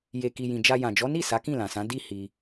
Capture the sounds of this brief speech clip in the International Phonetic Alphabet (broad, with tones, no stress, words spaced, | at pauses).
je˨ ki˧ jĩ˨d͡ʒa˧ jã˨d͡ʒɔ˨˦ni˦˨ sa˨˦kĩ˦˨lã˨sã˨˦ di˦˨hi˧